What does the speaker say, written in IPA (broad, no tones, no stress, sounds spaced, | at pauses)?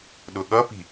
ɗ ʊ ɠ ʌ p i̤